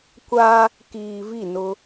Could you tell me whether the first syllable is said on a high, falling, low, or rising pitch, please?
high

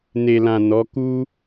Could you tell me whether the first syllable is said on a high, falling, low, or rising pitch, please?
low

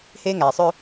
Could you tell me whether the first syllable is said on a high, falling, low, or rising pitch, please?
high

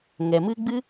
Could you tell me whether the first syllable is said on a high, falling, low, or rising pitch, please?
low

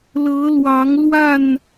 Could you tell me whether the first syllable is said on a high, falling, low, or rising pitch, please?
rising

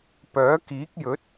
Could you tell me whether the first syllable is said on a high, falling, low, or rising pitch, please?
rising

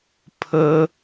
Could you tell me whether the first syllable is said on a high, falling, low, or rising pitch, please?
high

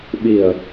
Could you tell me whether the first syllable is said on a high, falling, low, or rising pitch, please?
low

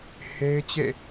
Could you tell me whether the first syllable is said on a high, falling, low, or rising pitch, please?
high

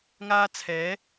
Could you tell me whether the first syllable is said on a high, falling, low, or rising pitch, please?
high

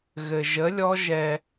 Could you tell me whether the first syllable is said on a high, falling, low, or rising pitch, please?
low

